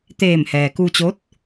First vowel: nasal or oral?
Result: oral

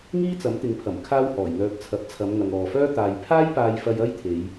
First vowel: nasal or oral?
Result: oral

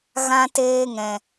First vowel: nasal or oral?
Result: nasal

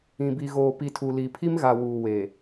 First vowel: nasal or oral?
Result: nasal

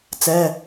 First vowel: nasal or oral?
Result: oral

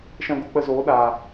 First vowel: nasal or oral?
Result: nasal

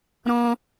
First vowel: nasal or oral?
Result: nasal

